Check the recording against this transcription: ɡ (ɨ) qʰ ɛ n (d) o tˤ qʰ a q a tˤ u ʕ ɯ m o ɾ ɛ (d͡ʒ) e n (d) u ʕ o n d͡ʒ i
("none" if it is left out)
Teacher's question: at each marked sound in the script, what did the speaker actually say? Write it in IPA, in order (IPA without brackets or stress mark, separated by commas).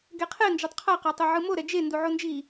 ɛ, d͡ʒ, d͡ʒ, d